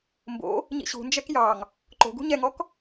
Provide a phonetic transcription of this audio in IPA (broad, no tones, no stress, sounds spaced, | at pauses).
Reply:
m b o̰ | ɲ ḭ ɕ ṳ n d͡ʒ ɛ k j ɑ ŋ | ǃ o̤ ɡ ṳ ɲ ɛ ŋ ɔ k